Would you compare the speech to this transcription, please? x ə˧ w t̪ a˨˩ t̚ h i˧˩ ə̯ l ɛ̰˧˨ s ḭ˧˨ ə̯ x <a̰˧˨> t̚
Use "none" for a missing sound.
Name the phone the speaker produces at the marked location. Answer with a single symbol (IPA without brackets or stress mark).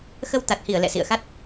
a˦˥